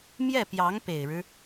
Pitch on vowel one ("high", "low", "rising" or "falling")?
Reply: falling